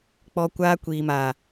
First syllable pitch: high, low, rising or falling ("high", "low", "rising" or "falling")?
low